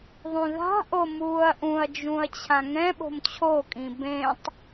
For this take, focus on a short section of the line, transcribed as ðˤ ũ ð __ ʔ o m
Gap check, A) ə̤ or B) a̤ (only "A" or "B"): B